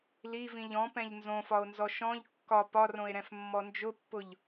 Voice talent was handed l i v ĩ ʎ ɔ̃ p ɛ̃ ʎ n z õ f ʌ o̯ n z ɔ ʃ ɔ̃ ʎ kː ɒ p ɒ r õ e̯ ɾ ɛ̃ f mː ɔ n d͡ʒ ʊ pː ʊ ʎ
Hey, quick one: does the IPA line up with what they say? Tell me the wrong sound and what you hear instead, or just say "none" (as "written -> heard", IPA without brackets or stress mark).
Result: ʌ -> ɒ